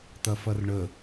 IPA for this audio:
t̪ ɐ f ɐ r ɳ ə

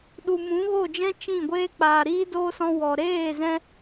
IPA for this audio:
ɗ u˨ m ũ˨˦ ɣ o˦˨ d͡ʒ ɛ̃˦ t͡ʃ ĩ˦˨ ɡʷ eː˦ k͡p aː˨ ɾ iː˦ d oː˦ s ɔ̃˧ w ɔ˨ ɾ eː˦˨ z ɛ̃˧

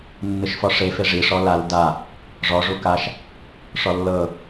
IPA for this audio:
nː ɯ ʃ f ɔ ʂ e f e ʐ i ʂ ɔ l a l d a | ʐ ɔ ʐ u k a ʃ | ʂ ɔ lː ɤ

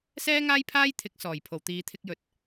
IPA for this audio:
s ɛː˥ ŋ aː˥ j pʰ aː˥ j t̪ʰ ɪ˨˥ k̚ s ɔː˨˩ j pʰ o˨˩ w t̪ iː˨˧ t̪ʰ ɪ˧ k̚ j ɵ˨ t̚

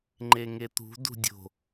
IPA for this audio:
ŋ͡ǃ e ŋ e t̪ ṳ d ṳ dʲ o̤

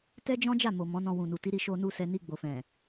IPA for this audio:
t ɛ˦ d͡ʒ ɔ̃˦ d͡ʒ a˦˨ m o˨ m ɔ̃˨˦ n ɔ̃˧ w ũ˨ n u˨ t i˨˦ ɾ i˧ ʃ o˧ n u˧ s ɛ˧ n i˧ ɡ͡b o˨ f ɛ̃˨

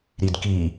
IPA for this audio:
ɾ i d k i

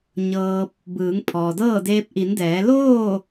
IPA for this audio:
ɲ ɤː˧ p̚ | b ɯː˩˧ ŋ pʰ ɔː˩ d ɤː˥˨ d eː˧ p̚ ʔ i˩˧ n d ɛː˩˧ l oː˥˨

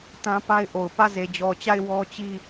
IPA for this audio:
t ã˦ p a˦ ɪ̯ ʔ o˨ ʊ̯ p ä˦˨ z e˨ d͡ʑ ɔ˨ t͡ɕ a˦˨ ɪ̯ w ɔ˦ t͡ɕ i˦˨

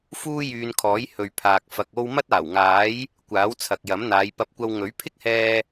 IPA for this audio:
f uː˥ j yː˧ n kʰ ɔː˨˥ j h ɵ˨ ɥ pʰ aː˨ k̚ f ɐ˨ k̚ o˥ w m ɐ˥ t̚ aː˨˩ w ŋ aː˨˥ j | kʷ aː˨˥ w t͡sʰ ɐ˨ k̚ j ɐ˨˥ m n̪ aː˨˧ j p ɐ˧ p̚ kʷ ɐ˧ w ŋ ɵ˨˥ ɥ pʰ ɪ˥ k̚ h ɛː˧

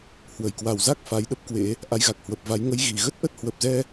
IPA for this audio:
h w ə˧˩ j k w a˨˩ w z a˦˥ k̚ f a˨˦ j ɗ ə˦˥ p̚ k w ḛ˧˥ | ʔ a˨˦ j ɣ a˨˩ k̚ h w ə˨˩ p̚ v a˨˦ j ŋ ə˨˦ j ɣ i˨˩ ɣ ə˦˥ t̚ ʔ ə˦˥ t̚ h w ə˨˩ p̚ z ɛ˧

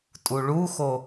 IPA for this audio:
tʼ u ɭ u x o

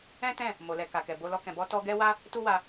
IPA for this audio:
ɛ̃˦ t ɛ̃˦˨ | m o˨ l ɛ˨ k a˨ k ɛ˨ b o˧ l ɔ˧ k ɛ̃˨ b ɔ˧ t ɔ˧ ɡ ɛ˦ w a˦ | t u˦ w a˧

